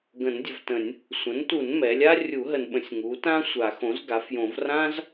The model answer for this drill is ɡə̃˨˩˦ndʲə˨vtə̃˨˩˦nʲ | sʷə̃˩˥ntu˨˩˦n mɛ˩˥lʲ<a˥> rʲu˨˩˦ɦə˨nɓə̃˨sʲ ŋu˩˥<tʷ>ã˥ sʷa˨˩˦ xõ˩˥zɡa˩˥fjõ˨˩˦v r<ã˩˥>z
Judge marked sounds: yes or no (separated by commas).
yes, no, no